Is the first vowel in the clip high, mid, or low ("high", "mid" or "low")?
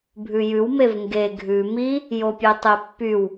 high